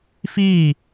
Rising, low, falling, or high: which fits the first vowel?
falling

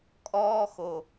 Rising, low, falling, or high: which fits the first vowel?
high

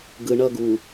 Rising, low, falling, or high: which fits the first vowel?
low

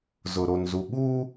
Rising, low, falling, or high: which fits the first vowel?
low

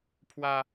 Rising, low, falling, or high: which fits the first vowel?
high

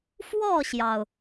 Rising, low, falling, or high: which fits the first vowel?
falling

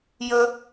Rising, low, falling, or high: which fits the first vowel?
high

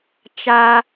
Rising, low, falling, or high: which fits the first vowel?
low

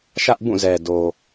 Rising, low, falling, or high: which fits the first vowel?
high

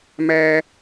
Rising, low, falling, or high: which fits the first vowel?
low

